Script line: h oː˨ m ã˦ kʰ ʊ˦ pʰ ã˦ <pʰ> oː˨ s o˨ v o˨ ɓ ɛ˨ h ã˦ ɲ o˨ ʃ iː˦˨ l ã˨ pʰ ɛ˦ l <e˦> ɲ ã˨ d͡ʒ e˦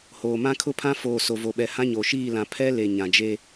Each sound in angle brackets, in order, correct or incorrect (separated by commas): incorrect, incorrect